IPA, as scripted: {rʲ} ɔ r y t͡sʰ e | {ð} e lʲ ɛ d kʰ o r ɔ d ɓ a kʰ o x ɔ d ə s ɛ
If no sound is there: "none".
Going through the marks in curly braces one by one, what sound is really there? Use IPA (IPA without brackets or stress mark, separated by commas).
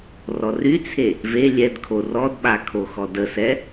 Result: r, v